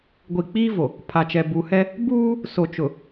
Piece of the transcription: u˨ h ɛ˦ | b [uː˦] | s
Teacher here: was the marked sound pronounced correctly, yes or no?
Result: yes